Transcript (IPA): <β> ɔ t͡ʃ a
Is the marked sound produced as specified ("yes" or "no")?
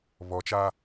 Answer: yes